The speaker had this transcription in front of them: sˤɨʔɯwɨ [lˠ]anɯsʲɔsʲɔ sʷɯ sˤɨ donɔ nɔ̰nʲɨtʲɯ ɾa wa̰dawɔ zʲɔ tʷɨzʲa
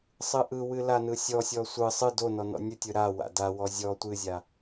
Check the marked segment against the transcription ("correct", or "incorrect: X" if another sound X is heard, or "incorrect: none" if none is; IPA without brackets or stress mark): incorrect: l